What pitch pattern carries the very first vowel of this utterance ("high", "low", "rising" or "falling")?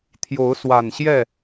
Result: rising